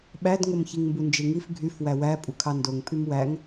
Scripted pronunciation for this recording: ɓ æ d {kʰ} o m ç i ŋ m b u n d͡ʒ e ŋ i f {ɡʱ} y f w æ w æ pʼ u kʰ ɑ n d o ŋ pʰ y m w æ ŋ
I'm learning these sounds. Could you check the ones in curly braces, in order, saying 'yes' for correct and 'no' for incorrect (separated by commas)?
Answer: no, yes